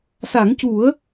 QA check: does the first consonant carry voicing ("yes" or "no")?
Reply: no